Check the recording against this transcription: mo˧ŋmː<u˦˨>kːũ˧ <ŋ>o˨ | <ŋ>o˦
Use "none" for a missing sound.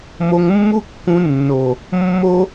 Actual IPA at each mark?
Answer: u˦, nː, mː

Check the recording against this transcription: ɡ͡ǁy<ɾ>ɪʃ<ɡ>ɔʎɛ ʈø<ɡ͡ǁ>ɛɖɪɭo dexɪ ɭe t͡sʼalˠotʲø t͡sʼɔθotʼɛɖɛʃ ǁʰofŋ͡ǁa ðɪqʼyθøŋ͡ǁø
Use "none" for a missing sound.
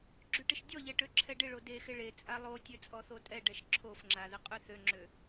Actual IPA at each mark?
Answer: ʈ, dʲ, ǁʰ

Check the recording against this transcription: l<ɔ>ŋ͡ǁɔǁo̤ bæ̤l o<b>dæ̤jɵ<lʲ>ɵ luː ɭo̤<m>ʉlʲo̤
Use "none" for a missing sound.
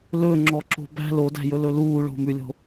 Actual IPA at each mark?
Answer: ɵ, none, l, m

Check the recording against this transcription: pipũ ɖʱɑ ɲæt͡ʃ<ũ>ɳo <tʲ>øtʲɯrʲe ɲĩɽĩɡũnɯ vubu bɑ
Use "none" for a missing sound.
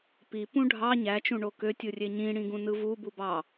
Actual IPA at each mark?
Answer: ũ, k

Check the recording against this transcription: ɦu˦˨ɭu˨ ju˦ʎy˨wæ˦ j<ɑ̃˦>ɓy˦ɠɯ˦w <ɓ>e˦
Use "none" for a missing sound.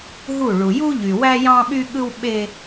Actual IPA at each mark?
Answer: ɑ̃˦, ɓ

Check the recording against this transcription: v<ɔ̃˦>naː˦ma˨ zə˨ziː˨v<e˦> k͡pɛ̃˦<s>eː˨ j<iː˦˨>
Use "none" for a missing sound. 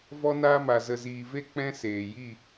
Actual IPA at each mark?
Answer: ɔ˦, e˦, s, i˦˨

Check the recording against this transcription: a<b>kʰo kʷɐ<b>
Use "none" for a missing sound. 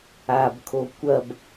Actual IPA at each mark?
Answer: b, b

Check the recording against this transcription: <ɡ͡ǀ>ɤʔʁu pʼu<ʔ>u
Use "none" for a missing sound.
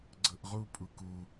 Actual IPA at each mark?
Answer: ɡ͡ǀ, k

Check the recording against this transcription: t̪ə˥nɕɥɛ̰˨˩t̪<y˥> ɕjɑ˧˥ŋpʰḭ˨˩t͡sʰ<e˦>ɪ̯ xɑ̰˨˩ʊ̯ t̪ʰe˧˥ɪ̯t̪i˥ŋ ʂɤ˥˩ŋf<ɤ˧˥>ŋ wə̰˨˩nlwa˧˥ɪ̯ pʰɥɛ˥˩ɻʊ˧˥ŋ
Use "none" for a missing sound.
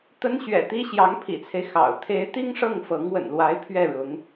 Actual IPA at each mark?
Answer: i˥, e˦, ɤ˧˥

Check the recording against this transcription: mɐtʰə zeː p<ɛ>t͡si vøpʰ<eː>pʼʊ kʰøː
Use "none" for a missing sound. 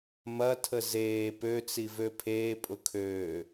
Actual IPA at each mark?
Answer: ø, eː

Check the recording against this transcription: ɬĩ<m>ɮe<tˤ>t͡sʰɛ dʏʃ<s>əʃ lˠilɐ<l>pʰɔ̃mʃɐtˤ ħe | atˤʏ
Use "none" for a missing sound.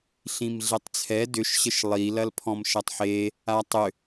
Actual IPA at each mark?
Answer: m, tˤ, ɕ, l

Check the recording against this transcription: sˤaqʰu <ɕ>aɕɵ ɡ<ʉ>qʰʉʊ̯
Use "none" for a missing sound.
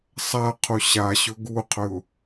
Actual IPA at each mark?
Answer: ɕ, u

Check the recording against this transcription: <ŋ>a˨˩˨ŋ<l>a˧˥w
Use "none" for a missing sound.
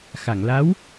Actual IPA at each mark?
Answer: x, l

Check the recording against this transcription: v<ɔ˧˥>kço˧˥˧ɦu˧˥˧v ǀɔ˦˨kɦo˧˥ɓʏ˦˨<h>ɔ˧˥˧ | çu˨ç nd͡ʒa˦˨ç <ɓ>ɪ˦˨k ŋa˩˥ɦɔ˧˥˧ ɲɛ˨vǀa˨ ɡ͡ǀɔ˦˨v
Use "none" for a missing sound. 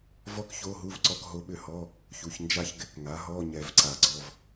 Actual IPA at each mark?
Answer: ɔ˥, h, ɡ

